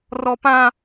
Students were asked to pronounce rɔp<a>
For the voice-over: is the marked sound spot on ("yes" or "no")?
no